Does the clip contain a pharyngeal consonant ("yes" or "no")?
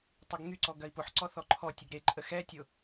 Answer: yes